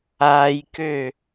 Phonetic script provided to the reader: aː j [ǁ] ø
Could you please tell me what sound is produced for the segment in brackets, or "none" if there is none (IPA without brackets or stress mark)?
k